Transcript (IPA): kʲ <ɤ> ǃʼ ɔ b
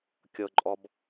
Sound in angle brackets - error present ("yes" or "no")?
no